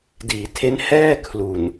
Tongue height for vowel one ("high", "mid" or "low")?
high